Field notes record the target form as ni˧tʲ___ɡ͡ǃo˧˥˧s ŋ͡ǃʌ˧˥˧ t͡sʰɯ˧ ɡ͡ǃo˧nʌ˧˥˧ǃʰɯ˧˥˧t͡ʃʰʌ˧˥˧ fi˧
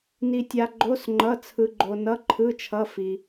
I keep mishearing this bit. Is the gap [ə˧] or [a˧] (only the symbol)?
a˧